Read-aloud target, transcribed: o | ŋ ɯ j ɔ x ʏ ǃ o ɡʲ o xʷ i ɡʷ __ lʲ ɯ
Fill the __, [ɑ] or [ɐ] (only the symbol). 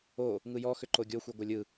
ɐ